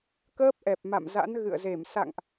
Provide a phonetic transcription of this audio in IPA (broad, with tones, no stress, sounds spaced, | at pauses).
k əː˦˥ p̚ ʔ ɛ˨˩ p̚ m a̰˧˨ m z a̰˧˥ n ɣ ɨ̰˧˨ ə̯ z e˧˩ m s a̰˧˨ ŋ ʔ